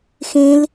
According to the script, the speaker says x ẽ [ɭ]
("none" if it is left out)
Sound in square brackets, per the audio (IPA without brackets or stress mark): l